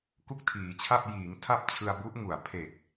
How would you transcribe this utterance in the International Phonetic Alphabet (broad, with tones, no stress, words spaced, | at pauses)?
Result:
ku˥˩k̚tʰiː˩˦t͡ɕʰa˥˩p̚ jiː˩˦ŋ tʰa˥˩p̚t͡ɕʰɯ˧a̯bu˦˥ʔŋu˨˩a̯ pʰe˨˩k̚